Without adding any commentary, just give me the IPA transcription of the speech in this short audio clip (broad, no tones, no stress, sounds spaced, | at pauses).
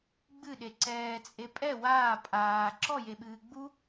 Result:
ɡ͡b ɨ ɗ e ǀ ɛː t͡sʼ e pʼ ɛ w aː pʼ aː ǁ ɔ j e ɓ ɨː ɡ͡b u